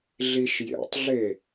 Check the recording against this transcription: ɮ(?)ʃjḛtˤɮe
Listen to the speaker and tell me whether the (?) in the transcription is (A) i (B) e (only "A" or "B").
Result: A